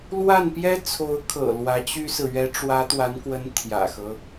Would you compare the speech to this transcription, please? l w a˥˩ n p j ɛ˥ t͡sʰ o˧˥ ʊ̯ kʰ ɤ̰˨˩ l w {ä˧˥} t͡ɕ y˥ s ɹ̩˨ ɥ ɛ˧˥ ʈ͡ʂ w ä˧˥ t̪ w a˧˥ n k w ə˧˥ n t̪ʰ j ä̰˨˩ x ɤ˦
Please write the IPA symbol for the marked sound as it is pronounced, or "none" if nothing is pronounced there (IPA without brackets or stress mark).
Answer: ä˧˥